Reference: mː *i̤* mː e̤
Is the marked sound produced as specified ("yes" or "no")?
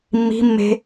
yes